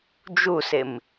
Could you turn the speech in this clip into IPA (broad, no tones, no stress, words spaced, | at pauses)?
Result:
d͡ʒusɪm